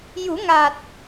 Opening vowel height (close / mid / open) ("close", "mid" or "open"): close